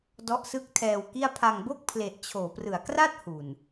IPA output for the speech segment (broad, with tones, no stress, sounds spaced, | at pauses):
d ɔ˦˥ ʔ s ɯ˦˥ k̚ tʰ ɛː˧ w k i˥˩ a̯ pʰ a˧ ŋ b o˥˩ k̚ pʰ l e˨˩ ʔ t͡ɕʰ oː˩˦ p r ɯ˩˦ a̯ k r a˥˩ t̚ h u˨˩ n